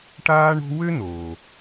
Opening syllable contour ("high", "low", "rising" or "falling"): high